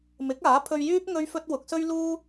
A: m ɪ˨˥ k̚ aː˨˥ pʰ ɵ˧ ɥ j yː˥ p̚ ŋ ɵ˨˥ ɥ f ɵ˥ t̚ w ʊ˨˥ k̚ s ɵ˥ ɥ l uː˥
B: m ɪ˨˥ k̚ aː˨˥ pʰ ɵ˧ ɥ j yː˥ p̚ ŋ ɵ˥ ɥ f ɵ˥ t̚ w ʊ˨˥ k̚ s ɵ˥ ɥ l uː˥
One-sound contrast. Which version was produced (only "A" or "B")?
B